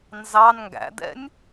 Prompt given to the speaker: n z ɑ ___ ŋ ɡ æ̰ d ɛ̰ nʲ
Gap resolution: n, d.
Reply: n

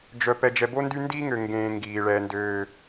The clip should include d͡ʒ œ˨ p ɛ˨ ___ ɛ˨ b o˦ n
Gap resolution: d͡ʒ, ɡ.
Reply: d͡ʒ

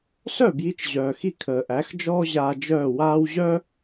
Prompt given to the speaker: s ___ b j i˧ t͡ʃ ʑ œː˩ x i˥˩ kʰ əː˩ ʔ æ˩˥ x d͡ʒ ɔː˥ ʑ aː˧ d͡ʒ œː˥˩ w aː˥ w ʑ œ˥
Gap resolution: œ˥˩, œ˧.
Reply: œ˥˩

